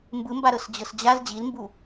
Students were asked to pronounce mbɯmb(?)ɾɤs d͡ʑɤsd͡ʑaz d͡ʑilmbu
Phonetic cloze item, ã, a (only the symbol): a